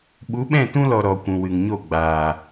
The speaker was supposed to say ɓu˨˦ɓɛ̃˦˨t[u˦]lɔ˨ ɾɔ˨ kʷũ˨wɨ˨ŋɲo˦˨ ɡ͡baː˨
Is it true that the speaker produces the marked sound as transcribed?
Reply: no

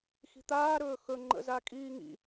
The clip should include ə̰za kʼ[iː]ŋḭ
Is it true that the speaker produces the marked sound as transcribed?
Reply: yes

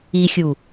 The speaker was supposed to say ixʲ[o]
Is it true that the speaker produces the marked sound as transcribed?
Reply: no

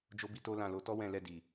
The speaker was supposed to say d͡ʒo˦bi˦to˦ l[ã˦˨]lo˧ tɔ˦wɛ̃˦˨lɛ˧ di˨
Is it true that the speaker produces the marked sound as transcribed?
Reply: yes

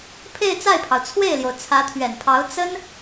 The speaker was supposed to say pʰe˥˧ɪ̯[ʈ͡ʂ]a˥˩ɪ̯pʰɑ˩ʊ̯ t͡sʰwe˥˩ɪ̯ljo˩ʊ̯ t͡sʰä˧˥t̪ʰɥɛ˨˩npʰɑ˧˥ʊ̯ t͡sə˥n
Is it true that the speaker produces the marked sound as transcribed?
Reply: no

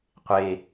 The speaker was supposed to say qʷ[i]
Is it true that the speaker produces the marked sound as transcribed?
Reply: no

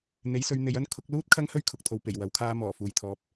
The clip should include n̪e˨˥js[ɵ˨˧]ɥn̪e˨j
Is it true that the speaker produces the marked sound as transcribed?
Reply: yes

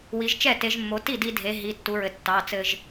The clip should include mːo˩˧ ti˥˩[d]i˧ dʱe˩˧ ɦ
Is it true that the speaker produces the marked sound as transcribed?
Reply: yes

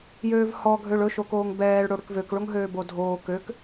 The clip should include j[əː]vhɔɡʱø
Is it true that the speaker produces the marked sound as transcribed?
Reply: no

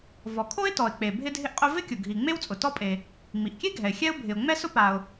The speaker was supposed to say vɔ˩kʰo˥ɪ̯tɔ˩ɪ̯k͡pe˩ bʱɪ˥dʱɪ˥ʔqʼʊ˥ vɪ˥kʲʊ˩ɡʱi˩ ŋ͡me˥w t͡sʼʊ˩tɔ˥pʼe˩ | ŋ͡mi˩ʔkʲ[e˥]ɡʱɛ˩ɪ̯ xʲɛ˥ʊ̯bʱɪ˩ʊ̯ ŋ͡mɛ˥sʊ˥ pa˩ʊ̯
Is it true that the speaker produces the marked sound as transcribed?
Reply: yes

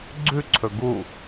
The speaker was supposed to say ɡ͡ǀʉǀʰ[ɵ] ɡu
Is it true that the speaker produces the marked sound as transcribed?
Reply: yes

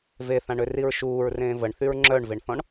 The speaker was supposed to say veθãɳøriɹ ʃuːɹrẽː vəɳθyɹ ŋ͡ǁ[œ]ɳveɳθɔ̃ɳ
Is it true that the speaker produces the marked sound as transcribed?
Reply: yes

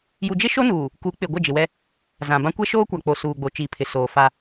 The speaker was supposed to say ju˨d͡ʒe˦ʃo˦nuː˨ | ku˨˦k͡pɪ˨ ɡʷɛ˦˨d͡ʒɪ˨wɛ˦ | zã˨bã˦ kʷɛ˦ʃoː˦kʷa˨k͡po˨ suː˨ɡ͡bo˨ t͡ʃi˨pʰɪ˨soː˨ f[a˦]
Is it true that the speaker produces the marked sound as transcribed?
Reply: yes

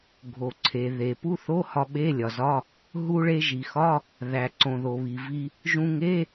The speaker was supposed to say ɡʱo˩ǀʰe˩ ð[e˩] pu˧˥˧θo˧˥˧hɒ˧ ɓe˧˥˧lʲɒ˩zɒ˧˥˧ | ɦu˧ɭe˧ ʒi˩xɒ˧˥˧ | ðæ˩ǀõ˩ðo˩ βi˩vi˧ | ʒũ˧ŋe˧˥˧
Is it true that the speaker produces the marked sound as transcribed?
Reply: yes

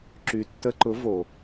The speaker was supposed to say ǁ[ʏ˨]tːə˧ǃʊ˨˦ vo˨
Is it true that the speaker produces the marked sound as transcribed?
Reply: no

